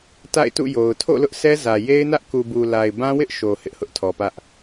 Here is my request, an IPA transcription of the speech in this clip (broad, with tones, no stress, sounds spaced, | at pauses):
t a̰˦˨ ɪ̯ t ṵ˦˨ j o˨ ʊ̯ tʰ o̰˦˨ l ʊ˦ ʔ s ɛ˦ z ä˨ j e˦ ɪ̯ n ä˦ ʔ k u˨ b u˨ l a˨ ɪ̯ b ã˦ w ɪ˦ ʔ ʃ o˨ h ɪ˦ ʔ h ʊ˦ ʔ tʰ ɔ˨ p ä˦ ʔ